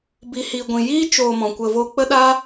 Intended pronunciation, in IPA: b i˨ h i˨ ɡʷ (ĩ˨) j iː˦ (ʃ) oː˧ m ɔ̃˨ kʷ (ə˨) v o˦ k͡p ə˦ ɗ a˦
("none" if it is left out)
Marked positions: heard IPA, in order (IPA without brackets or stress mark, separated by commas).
ĩ˨, t͡ʃ, ə˧